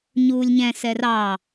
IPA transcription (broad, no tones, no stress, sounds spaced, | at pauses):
ɲ uː lʲ ɲ ɛ̃ s ɛ r ɑ